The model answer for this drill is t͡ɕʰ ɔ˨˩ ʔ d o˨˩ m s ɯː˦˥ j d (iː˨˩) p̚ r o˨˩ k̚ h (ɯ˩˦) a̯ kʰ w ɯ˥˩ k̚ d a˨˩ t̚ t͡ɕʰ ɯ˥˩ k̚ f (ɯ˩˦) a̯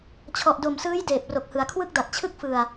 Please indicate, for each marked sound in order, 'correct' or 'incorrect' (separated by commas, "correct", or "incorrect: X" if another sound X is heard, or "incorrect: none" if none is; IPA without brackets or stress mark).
incorrect: eː˨˩, correct, incorrect: ɯ˨˩